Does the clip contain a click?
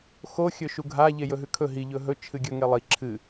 yes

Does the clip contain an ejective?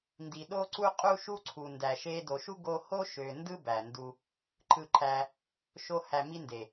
yes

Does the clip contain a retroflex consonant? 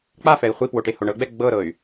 yes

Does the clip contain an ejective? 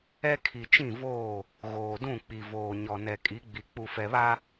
yes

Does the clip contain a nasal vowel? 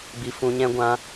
yes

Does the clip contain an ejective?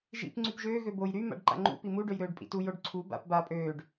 yes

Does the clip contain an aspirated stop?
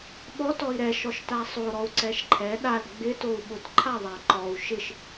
yes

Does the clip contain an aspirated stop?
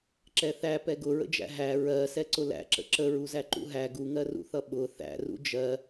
no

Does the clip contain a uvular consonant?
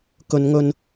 no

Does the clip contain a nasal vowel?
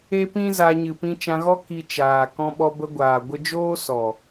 yes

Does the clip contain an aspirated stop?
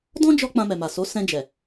no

